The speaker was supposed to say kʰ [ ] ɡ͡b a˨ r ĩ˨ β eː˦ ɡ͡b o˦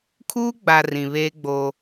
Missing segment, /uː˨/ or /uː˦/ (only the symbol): uː˦